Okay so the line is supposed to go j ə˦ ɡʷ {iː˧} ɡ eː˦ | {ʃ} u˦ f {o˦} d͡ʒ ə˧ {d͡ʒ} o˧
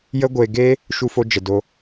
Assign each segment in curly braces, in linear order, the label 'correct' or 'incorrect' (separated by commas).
incorrect, correct, correct, incorrect